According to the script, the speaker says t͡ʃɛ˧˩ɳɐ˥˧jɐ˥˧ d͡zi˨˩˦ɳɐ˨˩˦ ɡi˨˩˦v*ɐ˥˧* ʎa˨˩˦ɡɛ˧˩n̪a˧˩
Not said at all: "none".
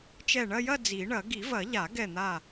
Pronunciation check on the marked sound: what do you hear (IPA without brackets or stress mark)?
ɐ˨˩˦